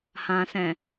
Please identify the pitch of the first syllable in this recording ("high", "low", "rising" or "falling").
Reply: low